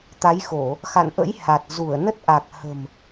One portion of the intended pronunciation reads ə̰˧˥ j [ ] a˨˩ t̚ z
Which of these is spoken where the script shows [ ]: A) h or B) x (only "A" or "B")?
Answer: A